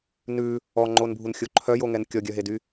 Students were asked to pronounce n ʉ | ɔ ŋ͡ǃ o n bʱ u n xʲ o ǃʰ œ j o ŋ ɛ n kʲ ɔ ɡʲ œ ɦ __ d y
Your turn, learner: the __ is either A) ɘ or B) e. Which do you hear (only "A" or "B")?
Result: B